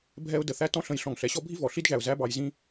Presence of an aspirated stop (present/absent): absent